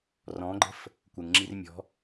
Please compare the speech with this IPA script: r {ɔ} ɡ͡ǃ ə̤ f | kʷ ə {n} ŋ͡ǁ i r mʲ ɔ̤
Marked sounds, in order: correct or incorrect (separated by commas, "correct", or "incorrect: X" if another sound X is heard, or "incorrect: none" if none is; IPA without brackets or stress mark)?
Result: incorrect: ɔ̃, incorrect: ŋ